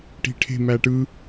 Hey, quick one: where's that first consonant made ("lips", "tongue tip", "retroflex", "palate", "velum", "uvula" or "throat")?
retroflex